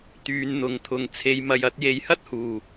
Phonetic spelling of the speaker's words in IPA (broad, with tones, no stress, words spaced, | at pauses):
t̪yː˨˧n n̪ʊ˨˧ŋt̪ʰʊ˨ŋ t͡sʰe˨˧jmɐ˨jɐ˨˥t̚ je˨˧jhɐ˥t̚huː˨˩